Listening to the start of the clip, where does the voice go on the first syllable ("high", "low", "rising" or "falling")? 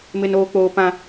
high